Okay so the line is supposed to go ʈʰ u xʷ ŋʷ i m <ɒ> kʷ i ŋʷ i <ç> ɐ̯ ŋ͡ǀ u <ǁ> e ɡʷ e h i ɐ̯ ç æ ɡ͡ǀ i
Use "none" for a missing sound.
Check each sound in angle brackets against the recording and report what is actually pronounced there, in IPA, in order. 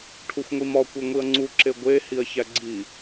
ɒ, none, ǁ

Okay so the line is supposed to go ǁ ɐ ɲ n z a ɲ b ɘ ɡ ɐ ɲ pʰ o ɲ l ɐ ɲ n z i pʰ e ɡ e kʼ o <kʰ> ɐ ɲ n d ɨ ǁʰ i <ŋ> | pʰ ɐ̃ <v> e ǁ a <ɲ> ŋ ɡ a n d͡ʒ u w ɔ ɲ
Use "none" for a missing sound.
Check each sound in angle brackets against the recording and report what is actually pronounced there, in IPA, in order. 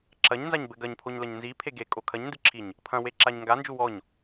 kʰ, ɲ, w, ɲ

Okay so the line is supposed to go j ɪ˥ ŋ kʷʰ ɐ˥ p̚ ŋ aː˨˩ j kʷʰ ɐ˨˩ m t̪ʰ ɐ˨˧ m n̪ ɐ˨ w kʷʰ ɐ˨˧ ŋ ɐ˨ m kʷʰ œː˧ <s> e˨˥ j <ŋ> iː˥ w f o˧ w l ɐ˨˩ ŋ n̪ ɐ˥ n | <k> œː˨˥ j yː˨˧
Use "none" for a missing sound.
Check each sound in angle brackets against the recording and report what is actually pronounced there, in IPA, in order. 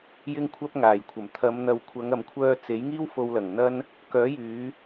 t͡s, ŋ, k

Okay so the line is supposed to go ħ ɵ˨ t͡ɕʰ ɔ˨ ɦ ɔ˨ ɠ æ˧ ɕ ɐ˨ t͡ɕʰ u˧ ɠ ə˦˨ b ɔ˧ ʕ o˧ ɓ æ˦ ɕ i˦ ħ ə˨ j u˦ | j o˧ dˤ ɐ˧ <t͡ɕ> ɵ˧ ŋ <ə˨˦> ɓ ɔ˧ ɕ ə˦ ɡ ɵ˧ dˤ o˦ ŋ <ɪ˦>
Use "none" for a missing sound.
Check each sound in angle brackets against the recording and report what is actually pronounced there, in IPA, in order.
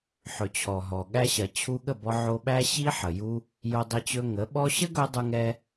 t͡ɕ, ə˨˦, ɛ˦

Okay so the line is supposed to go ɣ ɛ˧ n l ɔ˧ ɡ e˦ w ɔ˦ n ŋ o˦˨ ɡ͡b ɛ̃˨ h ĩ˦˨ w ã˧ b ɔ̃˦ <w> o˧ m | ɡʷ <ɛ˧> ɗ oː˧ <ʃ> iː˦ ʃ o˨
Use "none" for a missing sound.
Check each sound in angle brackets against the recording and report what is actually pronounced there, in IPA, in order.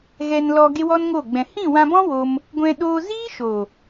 w, ɛ̃˧, z

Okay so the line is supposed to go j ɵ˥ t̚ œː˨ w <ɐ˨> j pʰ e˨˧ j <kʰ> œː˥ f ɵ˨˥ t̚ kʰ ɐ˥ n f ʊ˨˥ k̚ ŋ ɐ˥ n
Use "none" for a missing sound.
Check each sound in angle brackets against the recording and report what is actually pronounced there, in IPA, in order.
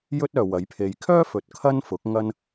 ɐ˨˥, kʰ

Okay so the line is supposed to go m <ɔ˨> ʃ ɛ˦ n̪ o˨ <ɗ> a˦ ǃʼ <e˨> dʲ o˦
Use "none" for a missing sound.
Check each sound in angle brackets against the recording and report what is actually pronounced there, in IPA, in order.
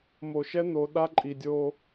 o˨, ɗ, i˨

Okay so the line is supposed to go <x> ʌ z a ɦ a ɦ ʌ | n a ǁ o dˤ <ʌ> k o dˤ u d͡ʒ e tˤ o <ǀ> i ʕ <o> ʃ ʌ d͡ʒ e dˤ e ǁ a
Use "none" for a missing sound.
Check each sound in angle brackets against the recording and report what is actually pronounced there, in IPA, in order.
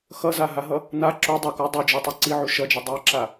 x, ʌ, ǀ, u

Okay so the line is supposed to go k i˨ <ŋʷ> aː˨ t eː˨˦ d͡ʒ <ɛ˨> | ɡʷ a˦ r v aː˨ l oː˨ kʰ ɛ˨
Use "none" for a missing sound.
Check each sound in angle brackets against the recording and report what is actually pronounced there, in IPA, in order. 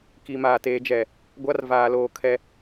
m, ɛ˨

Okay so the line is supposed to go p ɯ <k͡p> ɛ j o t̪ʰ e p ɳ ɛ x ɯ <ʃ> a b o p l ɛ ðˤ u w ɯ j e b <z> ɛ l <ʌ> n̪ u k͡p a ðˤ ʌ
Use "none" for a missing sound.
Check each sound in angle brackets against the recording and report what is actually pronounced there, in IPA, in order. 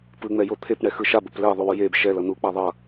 ŋ͡m, ʃ, ʃ, ʌ

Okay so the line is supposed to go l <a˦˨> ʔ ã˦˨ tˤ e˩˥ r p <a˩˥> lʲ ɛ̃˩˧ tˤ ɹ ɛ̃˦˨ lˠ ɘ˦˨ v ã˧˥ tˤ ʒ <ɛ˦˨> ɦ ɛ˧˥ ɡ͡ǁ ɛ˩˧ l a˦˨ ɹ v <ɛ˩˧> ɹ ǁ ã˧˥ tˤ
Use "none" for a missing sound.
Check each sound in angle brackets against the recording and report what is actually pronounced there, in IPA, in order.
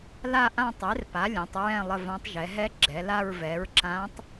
a˦˨, a˩˥, ɛ˩˧, ɛ˩˥

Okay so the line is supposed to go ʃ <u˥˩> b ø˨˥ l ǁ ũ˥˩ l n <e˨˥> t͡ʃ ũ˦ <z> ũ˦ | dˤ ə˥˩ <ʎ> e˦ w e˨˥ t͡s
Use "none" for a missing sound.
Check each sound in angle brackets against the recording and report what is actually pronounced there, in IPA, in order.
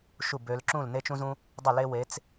u˥˩, e˦, z, l

